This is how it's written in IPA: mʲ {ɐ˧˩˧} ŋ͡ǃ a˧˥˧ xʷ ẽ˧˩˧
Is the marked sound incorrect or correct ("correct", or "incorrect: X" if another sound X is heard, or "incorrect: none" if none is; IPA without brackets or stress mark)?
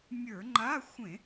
incorrect: ə˞˧˩˧